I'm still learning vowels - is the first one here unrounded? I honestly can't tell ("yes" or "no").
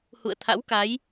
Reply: no